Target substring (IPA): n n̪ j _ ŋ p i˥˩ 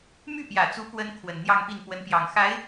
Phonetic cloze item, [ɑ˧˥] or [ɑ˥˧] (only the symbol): ɑ˥˧